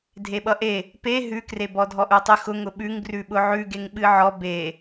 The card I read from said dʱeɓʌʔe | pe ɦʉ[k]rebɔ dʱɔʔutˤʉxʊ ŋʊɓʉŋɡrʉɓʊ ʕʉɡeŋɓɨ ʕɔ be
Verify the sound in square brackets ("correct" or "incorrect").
correct